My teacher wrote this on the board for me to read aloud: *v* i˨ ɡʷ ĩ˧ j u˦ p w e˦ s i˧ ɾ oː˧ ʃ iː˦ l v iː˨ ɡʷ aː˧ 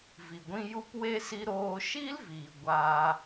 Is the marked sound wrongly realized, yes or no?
no